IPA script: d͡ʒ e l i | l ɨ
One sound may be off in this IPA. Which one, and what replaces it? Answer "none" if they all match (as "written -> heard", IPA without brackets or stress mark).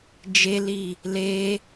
ɨ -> e